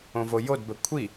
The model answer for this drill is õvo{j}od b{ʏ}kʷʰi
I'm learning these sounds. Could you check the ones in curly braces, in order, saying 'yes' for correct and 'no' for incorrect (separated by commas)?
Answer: yes, no